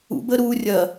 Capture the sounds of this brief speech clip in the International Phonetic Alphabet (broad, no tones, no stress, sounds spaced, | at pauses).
ṵ b əː ɾ uː rʲ ɐ